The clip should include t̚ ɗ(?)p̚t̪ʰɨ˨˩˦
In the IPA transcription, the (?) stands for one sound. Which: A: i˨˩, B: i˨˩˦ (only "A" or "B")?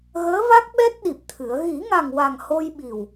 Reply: A